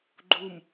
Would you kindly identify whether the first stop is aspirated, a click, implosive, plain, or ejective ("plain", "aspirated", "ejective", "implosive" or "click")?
click